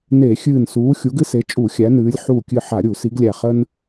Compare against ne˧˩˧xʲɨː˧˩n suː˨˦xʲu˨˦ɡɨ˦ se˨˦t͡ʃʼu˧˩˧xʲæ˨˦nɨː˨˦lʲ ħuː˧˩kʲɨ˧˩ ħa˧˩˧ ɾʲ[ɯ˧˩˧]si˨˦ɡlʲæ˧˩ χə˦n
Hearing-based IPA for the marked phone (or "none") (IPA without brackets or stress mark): u˧˩˧